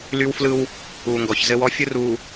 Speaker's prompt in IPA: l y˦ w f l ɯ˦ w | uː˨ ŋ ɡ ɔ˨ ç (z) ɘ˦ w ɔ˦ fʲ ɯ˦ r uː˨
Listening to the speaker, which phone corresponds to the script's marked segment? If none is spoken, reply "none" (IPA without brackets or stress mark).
z